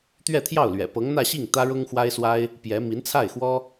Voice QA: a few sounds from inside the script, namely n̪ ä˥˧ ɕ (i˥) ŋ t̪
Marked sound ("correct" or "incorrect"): incorrect